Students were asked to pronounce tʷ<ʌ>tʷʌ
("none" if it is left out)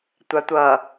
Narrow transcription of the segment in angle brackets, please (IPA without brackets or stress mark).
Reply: a